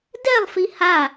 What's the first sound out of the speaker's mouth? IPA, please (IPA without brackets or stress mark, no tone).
d